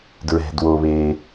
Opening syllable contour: low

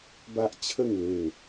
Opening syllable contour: high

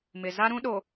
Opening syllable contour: low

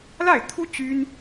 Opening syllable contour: falling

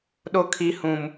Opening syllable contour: high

